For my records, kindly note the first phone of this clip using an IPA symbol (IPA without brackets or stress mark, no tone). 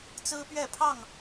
t͡s